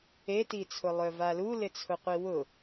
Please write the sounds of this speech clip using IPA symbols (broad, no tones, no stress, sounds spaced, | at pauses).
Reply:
e t i t͡sʰ ʊ lˠ œ v a l u l ɪ t͡sʰ ʊ qʷ i w ʊ